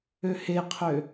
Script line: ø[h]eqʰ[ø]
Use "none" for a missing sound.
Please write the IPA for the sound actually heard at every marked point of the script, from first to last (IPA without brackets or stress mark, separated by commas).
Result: h, ø